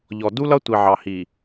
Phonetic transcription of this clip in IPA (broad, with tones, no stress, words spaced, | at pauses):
ʎɔ˨ du˦lʌ˦ tʷi˨ʕɑ˨hi˨